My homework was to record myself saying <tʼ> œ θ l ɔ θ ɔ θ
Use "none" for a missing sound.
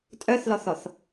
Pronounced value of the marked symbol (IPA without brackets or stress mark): tʼ